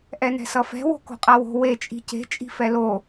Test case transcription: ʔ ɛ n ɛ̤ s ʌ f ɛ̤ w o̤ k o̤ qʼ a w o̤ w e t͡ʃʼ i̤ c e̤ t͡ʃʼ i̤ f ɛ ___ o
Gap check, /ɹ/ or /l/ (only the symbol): l